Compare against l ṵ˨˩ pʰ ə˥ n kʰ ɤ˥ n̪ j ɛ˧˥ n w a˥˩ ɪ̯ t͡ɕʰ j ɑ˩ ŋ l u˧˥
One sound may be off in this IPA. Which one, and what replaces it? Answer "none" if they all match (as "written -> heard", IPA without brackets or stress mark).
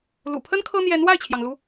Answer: none